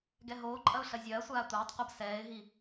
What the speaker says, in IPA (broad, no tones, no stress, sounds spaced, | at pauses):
ɡ ɛ ɦ oː ǃʼ ɐ ʊ̯ ɬ ɐ zʲ ɐː sʷ aː tʷ ɐː tˤ qʷ ɐ b s ɛː ɪ̯ ɦ i